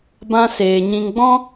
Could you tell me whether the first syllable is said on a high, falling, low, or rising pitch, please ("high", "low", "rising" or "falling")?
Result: high